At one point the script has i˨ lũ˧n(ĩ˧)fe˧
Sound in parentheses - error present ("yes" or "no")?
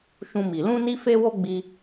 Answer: yes